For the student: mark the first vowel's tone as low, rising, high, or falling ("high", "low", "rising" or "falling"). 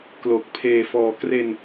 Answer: low